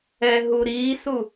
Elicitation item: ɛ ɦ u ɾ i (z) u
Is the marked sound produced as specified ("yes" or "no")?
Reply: no